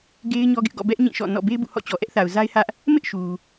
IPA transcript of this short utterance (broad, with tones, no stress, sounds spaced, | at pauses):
ɡ e˦ ɪ̯ ɲ ɔ˦ ɡ ɪ˦ ʔ ɡ ɔ̰˦˨ b ɛ˦ ʔ ɲ ĩ˦˨ ʃ ɔ̰˦˨ n ɔ̰˦˨ b e˦ ɪ̯ b ṵ˦˨ h ɔ̰˦˨ t͡ɕ ɔ˨ ʔ ɛ˦ ʔ θ a˨ ʊ̯ z a˦ ɪ̯ h ä˦ ʔ | m ɪ˦ ʔ ʃ u˨